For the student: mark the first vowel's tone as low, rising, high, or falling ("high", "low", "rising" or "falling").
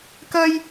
high